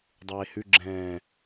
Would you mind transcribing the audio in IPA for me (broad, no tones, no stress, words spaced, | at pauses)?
dˤeːhʉ ɡ͡ǁɛ̃ː